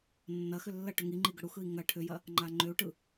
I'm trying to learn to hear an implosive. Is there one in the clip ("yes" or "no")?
no